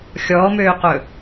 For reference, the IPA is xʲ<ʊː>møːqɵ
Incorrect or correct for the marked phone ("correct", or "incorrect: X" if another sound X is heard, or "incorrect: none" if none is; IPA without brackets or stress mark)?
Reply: incorrect: ɔː